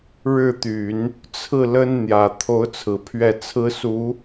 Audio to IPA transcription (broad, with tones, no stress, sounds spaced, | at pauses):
ɻ ɻ̩˥˩ t̪ y˨˩˦ n | t͡sʰ ɹ̩˥˩ l ə˥ n n̪ j ä˨˩ t̪ʰ o˧˥ ʊ̯ t͡sʰ ɹ̩˨˩ pʰ ɥ ɛ˥˩ t͡sʰ ɹ̩˥ s u˧˥